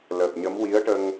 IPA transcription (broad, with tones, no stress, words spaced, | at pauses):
ləː˨˩p̚ɲə˧˥m wi˧˥ə̯ʈə˧ŋ